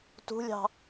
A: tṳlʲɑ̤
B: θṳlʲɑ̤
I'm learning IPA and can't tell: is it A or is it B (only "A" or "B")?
A